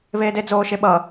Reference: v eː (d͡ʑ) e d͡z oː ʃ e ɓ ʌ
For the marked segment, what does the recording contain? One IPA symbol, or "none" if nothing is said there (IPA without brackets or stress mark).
d